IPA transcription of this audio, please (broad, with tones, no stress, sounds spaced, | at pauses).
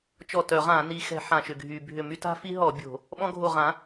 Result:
t͡ʃ ɔ˧˩ t œ˧˩˧ ʁ ã˧˩˧ n i˧˩˧ x ɛ̤˧˩˧ ħ ã˧˩ ʃ ʏ˧˩ ɡʱ y˧˩˧ bʱ ʏ˧˩ m y˦ t a̤˦ f i˦ ɦ ɔ˧˩˧ bʲ o̤˧˩˧ | ɓ ɔ̃˦ ɡʱ o˧˩ ʁ ã˩˥